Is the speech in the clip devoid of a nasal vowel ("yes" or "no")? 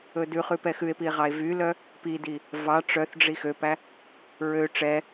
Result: yes